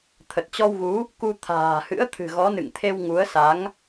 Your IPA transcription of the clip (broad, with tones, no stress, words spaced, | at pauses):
t̪ʰə˨˩t̚t͡ɕɔ˧wɣu˨˦ | ku˧ t̪ʰa̤ː˨˩hɨ̰˧˥ə̯ t̪ʰɨ̤˨˩ɣɔ˨˦nɨ̰˧˨ŋt̪ʰe˧w ŋu˨˦ə̯sa˨˦ŋ